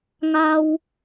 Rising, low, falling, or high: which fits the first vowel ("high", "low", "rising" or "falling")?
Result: high